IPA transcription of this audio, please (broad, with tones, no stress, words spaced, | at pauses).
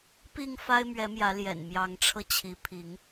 pi˥˨ŋ fa˦ɪ̯mɥɛ˨˦mjä˨˦ ljɛ̰˨˩nmjɑ˨˦ŋʈ͡ʂʰɤ˧t͡ɕʰi˨˦ pʰi˨˦ŋ